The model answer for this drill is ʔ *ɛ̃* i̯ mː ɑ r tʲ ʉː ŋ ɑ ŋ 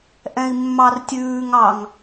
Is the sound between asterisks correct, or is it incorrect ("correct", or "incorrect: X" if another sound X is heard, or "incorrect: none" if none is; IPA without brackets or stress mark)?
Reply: correct